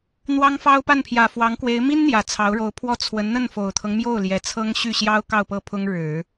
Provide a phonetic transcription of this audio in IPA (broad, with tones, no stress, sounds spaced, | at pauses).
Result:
n̪ w ɑ˥ ŋ f ɑ˥ ʊ̯ p a˥˩ n pʰ j ä˨˩ f w ɑ˧˥ ŋ k w e˧˥ ɪ̯ m i˥ n n̪ j ä˨˩ t͡sʰ ɑ˧˥ ʊ̯ ɻ o˧˥ ʊ̯ pʰ w ɔ˥˩ t͡sʰ w ə˧˥ n n̪ ə˥˩ n f o˨˩ ʊ̯ t̪ʰ ɤ˦ ŋ m j o˥˩ ʊ̯ l j ɛ˨˩ t͡sʰ ɤ˥ ŋ ɕ y˥˩ ɕ j ɑ˥ ʊ̯ k ɑ˥˧ ʊ̯ p ɤ˥˩ pʰ ʊ˥ ŋ ɻ ɻ̩˨˩˦